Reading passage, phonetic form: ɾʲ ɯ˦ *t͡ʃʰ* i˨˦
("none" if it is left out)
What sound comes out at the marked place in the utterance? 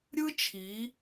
t͡ʃʰ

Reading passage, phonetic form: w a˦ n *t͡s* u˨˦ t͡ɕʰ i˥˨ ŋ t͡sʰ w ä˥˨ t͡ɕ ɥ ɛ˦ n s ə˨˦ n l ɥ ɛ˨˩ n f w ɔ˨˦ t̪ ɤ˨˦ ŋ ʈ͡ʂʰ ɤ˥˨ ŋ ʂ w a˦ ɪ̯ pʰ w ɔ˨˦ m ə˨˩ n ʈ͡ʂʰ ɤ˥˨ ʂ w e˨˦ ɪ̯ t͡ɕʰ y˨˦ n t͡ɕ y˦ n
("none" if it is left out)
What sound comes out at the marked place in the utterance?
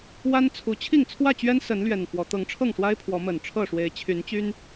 t͡sʰ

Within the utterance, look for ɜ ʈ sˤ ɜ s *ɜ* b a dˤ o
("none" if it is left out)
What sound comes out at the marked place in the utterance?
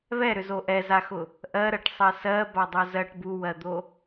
ɜ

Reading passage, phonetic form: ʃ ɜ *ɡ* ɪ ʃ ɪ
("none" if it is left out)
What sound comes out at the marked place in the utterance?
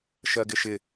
ɡ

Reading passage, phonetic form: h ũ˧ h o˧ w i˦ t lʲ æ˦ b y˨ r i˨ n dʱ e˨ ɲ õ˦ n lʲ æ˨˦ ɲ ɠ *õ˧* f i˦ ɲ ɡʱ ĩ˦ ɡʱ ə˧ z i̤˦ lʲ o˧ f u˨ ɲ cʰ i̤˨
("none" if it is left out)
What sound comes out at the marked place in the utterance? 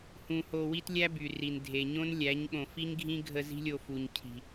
õ˨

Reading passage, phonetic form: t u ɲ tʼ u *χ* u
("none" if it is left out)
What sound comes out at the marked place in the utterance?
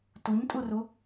r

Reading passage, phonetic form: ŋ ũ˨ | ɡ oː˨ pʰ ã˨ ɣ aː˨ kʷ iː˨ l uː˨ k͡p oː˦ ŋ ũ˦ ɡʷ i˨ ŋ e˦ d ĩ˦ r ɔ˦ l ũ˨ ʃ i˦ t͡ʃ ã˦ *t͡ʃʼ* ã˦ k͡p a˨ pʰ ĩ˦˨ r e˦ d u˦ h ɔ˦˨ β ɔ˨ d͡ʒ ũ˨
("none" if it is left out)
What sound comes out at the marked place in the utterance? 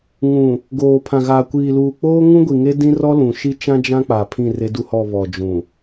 d͡ʒ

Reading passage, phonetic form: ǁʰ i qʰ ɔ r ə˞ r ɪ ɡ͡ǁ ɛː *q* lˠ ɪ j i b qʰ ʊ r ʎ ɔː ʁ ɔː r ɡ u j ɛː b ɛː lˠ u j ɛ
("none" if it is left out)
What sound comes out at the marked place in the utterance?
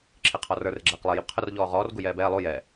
q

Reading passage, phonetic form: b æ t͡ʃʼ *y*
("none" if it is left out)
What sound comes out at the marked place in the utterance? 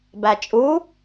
u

